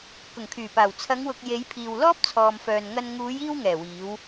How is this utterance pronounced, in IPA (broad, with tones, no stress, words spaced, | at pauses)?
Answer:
kʊ˨˩ŋkʰyː˨˩paː˨˩w t͡sʰɐ˨˧ŋwʊ˨k̚ je˨˧jpʰiː˨w lɔː˥p̚t͡sʰɔː˨mfœː˨nŋɐ˧n ŋuː˨˧jiː˧w ŋɛː˨˩wiː˨˧w